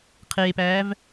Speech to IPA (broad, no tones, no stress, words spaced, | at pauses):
qʰeːpæːv